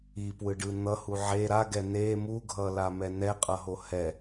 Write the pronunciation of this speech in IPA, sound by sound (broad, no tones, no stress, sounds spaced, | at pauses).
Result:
i p w ɯ ɖ ɯ n̪ ʌ h u ʕ e ɾ a ɡ ɛ n e m u ɡʱ ʌ l a m ɛ n ɛ qʼ ʌ ɦ o h ɛ